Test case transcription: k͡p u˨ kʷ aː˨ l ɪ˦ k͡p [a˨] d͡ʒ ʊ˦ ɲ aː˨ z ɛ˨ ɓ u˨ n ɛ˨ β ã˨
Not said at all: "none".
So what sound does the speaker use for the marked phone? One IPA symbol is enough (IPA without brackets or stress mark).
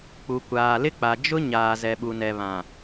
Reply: a˨